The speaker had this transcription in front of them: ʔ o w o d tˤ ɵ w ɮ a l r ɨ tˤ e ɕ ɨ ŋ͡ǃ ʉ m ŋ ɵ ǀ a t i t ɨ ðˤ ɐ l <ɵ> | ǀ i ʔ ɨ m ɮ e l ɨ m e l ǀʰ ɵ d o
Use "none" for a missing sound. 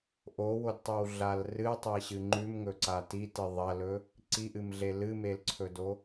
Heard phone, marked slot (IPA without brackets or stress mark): ɵ